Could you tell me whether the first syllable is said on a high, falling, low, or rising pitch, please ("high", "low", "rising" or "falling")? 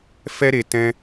high